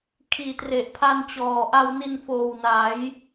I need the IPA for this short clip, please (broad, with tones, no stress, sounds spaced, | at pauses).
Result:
kʰ iː˨˩ t r e˨˩ ʔ pʰ a˧ n t͡ɕ ɔː˨˩ ʔ a˧ w n i˧ n f oː˨˩ w n aː˩˦ j